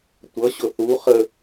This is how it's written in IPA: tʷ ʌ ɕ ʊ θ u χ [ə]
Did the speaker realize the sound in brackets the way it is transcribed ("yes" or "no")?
yes